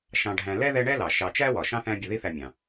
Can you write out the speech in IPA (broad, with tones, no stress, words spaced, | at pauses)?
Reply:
ʃɑ̃˨ɖʱæ̃˨ lɛ˥ðɛ˦ ɳɛ˥lɑ˩ ʃɑ˨t͡ʃæ˥wɒ˩ ʃɑ̃˥θæ̃˦ bʲʊ˨ði˦θæ˨mʲɑ̃˩